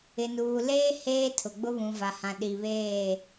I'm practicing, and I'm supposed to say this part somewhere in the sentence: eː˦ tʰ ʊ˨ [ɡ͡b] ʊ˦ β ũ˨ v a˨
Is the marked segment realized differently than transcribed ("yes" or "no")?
no